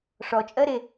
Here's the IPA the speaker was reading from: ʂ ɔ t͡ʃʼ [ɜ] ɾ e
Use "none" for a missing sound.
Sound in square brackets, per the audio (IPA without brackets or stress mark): ɜ